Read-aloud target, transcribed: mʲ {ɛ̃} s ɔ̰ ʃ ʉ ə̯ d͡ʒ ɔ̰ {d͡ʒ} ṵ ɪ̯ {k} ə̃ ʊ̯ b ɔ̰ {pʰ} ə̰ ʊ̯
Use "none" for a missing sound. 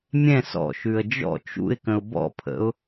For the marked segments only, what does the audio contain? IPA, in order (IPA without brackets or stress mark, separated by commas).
ɛ̃, t͡ʃ, k, pʰ